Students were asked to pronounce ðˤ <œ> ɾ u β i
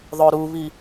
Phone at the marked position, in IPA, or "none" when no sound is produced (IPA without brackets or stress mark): œ